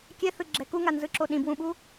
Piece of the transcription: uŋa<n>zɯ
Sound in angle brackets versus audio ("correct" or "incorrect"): correct